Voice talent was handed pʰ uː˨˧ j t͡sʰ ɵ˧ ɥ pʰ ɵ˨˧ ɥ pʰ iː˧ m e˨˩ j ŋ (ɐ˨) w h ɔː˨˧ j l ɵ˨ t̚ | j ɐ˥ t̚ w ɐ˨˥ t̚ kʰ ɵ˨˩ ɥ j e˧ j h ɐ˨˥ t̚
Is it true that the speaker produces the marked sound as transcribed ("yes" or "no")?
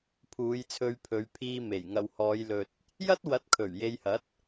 yes